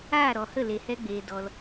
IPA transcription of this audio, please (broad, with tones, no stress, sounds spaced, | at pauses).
aː˦˨ ɾ ɔ˨ h ə˦˨ l e˨ h ɛ˧ ɡ͡b eː˨ d ɔ˧ l